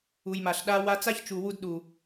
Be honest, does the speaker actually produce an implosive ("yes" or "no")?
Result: yes